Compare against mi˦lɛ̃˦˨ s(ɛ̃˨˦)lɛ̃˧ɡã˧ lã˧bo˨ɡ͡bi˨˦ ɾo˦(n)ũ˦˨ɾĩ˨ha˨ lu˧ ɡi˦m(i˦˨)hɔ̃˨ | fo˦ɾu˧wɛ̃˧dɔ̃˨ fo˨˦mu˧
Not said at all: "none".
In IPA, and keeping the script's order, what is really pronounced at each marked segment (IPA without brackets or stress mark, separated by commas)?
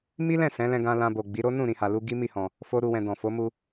ɛ̃˨˦, n, i˦˨